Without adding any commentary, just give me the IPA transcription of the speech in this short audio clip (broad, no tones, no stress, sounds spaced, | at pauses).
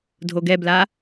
dʱ o ɡ ɛ b l a